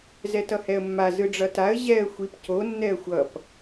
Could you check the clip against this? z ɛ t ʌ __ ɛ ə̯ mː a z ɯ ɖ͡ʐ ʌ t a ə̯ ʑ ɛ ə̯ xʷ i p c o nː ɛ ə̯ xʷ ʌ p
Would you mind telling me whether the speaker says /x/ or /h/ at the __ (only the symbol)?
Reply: h